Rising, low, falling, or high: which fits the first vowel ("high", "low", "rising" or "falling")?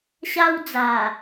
high